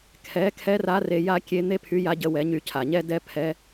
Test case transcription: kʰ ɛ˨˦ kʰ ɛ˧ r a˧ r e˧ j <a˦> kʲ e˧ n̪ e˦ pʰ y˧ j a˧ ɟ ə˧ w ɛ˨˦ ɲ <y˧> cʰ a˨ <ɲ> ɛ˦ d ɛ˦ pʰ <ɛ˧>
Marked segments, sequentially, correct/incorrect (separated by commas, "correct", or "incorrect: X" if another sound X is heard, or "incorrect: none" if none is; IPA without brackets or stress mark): correct, correct, correct, correct